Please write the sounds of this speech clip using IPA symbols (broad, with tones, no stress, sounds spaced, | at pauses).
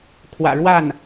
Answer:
kʰ w ä̰˨˩ ɻ w a˥˩ n